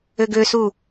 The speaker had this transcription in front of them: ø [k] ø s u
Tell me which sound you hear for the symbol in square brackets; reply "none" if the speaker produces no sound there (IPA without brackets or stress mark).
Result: ɡ